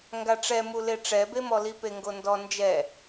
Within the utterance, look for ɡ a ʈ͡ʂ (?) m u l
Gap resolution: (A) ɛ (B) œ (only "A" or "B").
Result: A